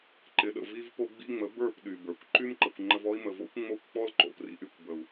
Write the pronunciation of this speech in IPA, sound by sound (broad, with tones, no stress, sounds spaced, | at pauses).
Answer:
ǃ ɪ˨ ɗ ə̰˨ v i˦ v p o˧ ɡ͡b ḭ˧ ŋ͡m ə˨˦ b ə˞˦˨ p ɗ y˨ b ə˞˨ kʷ ǃ y˦ m ǃ ə˨ kʷ ŋ͡ǃ ə˧ v ɔ˦ i̯ m ə˨ v o̰˦ kʷ ŋ͡m o˦ kʷ k͡p ɔ˦ l ǃ o̰˨ p r ḭ˧ ʔ y˨ kʷ b ə˨ u̯